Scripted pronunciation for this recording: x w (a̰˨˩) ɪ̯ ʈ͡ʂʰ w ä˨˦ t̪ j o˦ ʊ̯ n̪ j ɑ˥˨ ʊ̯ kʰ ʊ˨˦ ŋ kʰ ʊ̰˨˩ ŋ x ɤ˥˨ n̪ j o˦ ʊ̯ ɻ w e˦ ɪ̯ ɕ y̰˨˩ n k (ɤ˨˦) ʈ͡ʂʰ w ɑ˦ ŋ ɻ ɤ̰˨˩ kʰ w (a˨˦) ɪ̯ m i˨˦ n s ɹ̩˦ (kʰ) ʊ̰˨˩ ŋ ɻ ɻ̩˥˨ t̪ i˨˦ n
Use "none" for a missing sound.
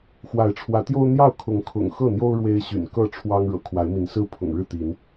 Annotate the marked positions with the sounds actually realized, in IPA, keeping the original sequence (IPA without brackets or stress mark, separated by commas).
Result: a˨˦, ɤ˥˨, a˨˦, pʰ